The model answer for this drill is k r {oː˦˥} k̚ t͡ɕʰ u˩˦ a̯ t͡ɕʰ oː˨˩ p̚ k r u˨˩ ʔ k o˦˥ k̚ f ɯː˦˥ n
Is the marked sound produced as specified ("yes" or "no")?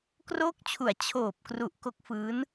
yes